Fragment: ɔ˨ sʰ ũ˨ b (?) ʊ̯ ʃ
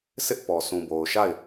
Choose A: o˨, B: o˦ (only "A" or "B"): A